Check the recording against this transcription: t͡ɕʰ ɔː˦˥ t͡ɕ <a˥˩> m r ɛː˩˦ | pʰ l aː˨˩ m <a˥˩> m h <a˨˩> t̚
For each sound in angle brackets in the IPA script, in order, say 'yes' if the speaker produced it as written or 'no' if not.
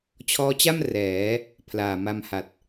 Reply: yes, no, yes

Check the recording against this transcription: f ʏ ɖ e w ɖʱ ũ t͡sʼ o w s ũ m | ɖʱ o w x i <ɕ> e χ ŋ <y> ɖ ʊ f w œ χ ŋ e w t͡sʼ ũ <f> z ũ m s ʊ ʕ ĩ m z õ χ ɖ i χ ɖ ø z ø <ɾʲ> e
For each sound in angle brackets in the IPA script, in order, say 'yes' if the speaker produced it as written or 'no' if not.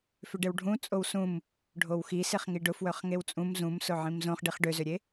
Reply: no, no, no, yes

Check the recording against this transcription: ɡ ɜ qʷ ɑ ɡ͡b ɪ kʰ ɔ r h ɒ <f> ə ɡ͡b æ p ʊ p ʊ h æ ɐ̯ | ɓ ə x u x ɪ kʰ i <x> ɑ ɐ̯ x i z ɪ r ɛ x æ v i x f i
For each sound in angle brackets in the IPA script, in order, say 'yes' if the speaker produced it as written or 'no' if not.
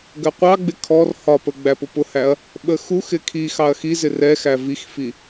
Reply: no, yes

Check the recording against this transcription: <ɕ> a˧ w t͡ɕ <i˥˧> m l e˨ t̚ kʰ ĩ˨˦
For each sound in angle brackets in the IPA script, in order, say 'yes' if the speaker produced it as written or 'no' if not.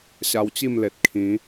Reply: yes, yes

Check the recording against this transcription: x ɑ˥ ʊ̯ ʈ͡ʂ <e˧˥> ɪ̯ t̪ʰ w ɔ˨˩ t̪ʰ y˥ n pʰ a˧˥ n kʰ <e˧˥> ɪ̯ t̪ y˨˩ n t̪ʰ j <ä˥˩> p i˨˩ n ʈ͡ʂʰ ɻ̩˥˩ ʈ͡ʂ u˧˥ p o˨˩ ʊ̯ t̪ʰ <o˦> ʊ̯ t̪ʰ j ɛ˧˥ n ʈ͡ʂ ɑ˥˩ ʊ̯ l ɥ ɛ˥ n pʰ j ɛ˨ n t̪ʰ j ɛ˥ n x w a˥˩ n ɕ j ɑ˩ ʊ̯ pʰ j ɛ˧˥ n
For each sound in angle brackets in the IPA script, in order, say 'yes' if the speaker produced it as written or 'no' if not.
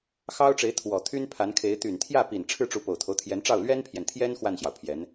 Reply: yes, yes, yes, yes

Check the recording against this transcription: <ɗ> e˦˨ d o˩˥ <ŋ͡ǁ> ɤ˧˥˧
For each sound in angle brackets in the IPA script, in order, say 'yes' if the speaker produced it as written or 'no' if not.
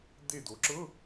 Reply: no, no

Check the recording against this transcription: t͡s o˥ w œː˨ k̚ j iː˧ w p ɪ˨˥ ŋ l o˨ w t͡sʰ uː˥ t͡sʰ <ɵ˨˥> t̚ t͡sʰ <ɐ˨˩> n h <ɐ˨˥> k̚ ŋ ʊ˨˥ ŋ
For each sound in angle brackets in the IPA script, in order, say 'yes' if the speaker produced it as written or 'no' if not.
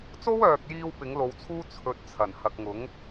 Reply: yes, yes, no

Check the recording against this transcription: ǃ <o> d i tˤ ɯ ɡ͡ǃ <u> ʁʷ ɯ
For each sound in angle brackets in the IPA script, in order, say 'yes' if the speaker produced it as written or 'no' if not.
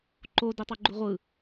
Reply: yes, yes

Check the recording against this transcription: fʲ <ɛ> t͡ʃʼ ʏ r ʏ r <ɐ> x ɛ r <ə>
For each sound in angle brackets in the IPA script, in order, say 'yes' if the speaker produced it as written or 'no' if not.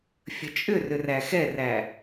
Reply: no, no, no

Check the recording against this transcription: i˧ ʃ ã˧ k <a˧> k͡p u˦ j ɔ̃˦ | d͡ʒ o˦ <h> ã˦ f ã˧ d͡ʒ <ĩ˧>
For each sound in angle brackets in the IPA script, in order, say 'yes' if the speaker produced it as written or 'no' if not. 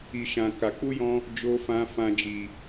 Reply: yes, no, no

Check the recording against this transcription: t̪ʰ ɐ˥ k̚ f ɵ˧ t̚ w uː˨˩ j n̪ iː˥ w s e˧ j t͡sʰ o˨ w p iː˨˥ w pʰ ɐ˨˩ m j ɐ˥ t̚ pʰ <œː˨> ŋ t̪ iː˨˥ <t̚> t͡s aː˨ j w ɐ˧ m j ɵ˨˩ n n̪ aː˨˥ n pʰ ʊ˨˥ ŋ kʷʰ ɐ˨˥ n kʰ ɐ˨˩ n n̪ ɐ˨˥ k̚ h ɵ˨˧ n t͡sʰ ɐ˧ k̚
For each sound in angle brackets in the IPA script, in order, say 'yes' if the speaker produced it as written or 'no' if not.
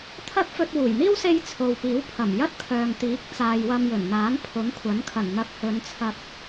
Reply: yes, no

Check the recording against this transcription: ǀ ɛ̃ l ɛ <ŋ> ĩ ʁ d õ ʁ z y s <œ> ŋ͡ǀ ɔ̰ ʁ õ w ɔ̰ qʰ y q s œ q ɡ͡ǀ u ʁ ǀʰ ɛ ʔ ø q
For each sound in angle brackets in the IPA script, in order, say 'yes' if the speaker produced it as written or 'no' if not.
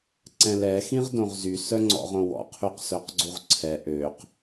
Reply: no, yes

